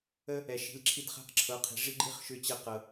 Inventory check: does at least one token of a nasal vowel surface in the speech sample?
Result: no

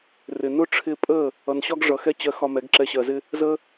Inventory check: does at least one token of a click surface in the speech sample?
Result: yes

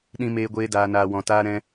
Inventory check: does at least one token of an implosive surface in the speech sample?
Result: yes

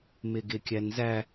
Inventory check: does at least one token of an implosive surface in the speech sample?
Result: no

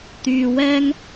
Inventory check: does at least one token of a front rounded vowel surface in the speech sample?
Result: yes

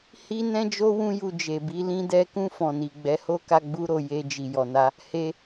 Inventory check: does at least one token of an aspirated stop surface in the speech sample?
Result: no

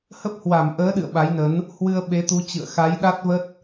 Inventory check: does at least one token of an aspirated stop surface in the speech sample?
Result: no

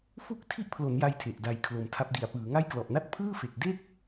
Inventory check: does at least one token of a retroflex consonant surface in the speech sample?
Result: no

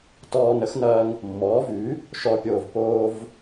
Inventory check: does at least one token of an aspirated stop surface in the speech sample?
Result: no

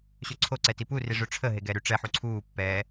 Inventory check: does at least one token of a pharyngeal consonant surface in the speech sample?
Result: yes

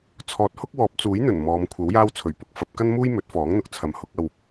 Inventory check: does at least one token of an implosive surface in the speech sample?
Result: no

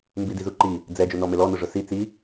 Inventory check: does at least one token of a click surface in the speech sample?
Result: yes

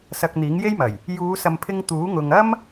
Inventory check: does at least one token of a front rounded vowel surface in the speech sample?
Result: no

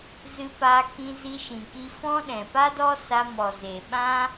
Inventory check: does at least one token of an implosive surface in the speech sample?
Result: yes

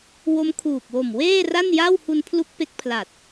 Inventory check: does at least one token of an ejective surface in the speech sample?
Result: no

